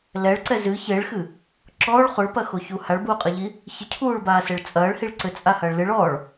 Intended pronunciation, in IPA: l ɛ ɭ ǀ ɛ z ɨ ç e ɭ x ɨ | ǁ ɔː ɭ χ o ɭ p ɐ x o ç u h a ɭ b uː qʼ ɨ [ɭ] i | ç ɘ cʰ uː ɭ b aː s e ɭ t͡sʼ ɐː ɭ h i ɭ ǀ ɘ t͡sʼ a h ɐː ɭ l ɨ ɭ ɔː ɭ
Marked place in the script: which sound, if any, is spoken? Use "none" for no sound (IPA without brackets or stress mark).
ʎ